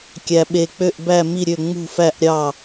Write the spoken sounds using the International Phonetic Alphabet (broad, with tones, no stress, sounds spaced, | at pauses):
kʲ æ˩ ɓ e˩ k͡p ø˧˩ ʔ b æ˧˩ m i˧˩ ɾʲ ø˧˩ ŋ͡m ṳ˧˩ f æ˧˩ ʔ ɾʲ ɑ˧˩